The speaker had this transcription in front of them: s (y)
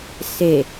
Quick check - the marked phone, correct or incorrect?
incorrect